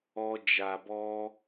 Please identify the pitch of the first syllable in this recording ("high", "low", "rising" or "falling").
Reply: high